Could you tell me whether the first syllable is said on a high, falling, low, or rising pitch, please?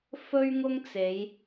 high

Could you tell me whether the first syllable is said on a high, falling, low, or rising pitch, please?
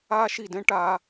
high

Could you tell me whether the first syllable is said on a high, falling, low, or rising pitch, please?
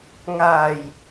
low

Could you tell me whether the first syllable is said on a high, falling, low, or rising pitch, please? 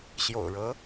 low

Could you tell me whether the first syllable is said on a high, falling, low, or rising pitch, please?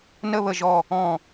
falling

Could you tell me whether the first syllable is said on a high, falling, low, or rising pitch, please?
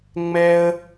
high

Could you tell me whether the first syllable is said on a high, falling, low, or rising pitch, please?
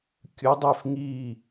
rising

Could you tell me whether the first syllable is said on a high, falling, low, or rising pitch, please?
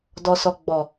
low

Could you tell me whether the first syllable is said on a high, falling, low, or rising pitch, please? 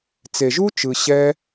low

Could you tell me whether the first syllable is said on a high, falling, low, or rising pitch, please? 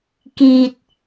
low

